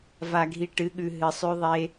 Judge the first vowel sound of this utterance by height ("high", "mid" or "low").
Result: low